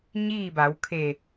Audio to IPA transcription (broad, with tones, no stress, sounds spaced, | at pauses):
ɲ iː˥˨ b a˩˧ w kʰ e˧˩